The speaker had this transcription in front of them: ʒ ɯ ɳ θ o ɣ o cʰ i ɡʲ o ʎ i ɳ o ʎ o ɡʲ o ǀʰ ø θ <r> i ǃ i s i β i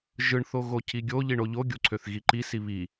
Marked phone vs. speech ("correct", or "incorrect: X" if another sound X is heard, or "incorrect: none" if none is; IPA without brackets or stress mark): incorrect: ɣ